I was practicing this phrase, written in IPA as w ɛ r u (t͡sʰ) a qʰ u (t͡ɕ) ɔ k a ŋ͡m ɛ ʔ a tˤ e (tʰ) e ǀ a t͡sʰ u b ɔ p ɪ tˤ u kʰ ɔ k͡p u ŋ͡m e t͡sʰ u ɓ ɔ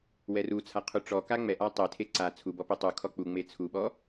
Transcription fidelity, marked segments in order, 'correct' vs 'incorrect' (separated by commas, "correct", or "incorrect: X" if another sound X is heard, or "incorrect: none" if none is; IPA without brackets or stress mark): correct, incorrect: ʈ͡ʂ, correct